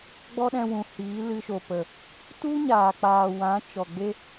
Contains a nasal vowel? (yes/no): yes